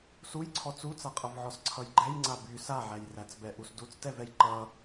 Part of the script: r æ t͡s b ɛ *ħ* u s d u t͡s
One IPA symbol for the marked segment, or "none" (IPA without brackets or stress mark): ʔ